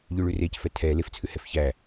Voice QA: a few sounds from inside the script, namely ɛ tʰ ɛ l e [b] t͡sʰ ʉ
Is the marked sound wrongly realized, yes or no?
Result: yes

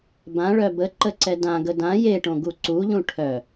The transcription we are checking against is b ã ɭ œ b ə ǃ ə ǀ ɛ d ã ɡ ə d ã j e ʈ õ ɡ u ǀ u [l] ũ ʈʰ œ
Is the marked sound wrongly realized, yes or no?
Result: yes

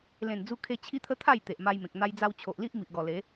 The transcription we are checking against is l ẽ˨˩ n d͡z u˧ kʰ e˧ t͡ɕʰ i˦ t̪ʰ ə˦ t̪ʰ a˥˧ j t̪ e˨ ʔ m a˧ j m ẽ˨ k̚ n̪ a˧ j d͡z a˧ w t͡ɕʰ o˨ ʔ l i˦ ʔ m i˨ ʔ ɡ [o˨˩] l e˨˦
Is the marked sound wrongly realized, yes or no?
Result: yes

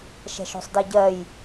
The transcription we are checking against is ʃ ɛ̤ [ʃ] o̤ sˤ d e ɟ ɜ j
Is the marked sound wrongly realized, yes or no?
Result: no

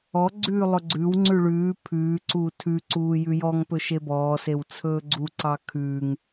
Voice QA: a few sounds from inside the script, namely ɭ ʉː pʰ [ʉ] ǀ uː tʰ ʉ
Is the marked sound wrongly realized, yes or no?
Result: yes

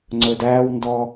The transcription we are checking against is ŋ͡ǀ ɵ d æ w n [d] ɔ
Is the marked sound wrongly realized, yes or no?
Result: no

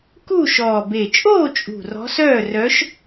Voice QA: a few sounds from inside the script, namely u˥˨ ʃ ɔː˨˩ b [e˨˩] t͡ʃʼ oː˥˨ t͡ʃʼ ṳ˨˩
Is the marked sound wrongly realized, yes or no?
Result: no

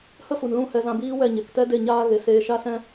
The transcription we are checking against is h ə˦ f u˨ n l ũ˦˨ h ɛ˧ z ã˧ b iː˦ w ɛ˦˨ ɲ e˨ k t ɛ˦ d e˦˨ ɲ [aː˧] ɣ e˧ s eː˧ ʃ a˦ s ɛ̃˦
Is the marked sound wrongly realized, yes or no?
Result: yes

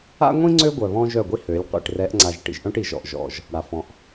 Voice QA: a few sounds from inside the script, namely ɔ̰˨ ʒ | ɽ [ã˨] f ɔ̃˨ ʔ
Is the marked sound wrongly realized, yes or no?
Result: yes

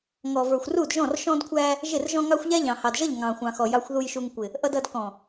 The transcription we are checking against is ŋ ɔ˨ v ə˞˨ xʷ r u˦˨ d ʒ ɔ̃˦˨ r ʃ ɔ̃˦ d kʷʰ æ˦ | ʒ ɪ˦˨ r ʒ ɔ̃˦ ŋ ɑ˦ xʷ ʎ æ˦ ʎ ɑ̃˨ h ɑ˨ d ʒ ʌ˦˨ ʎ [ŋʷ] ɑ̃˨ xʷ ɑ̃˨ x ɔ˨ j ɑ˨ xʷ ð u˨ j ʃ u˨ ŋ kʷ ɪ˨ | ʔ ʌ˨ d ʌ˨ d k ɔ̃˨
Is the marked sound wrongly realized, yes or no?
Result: yes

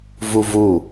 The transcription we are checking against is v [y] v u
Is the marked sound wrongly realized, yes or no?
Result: yes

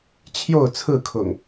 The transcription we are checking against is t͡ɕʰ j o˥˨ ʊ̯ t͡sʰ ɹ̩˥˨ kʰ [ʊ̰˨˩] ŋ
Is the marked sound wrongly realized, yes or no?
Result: no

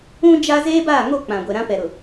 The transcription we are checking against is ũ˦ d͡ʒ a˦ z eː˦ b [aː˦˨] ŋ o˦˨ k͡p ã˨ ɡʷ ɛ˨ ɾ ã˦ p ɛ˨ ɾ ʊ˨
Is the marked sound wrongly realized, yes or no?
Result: no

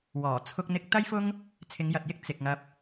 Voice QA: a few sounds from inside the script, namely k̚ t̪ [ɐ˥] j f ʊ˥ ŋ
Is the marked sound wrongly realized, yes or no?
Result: no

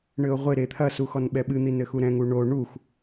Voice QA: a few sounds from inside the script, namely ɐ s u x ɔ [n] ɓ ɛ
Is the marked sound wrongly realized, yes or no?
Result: no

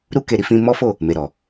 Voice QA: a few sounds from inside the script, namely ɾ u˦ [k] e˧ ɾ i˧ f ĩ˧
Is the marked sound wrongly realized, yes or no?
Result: no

